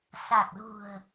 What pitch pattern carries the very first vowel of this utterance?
low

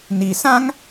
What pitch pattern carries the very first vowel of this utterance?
low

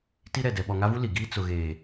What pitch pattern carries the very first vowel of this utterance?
high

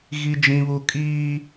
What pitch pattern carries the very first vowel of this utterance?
high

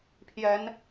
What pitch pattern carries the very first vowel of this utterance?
rising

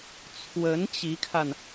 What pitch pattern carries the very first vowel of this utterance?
rising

